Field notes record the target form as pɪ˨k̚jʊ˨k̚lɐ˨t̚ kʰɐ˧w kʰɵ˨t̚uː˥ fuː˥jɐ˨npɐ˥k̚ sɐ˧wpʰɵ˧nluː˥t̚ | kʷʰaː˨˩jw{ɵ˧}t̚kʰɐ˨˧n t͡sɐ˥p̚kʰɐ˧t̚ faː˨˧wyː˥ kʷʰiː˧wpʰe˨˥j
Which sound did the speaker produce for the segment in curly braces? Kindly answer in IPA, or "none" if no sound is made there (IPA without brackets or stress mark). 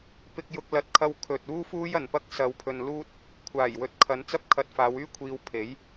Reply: ɵ˨˥